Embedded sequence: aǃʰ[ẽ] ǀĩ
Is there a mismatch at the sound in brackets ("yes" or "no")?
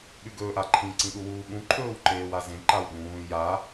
yes